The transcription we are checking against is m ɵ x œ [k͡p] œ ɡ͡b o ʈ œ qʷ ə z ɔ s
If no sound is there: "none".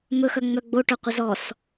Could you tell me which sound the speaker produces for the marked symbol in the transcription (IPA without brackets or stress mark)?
ŋ͡m